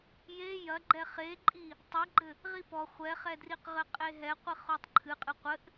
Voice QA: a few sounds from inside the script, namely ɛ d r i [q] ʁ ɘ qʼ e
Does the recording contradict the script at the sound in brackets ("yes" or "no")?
no